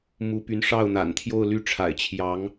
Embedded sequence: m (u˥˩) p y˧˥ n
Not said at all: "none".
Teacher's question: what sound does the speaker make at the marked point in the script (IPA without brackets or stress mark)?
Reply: u˧˥